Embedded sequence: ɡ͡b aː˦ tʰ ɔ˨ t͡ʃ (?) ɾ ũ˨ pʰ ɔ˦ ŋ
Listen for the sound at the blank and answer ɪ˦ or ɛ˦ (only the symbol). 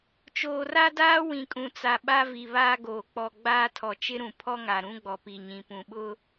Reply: ɪ˦